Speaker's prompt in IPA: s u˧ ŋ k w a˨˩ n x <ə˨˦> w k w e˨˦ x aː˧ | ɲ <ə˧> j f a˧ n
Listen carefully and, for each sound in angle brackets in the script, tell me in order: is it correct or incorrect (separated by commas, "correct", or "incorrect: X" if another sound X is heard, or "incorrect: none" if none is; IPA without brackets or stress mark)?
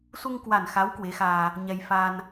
incorrect: a˨˦, incorrect: ɛ˧